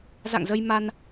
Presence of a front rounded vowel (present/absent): absent